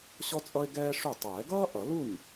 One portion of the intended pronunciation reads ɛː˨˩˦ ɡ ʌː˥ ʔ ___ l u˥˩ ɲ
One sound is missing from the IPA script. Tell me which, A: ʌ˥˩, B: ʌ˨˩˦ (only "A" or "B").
B